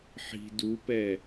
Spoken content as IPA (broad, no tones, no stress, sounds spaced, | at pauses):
ħ i̤ d u p ɛ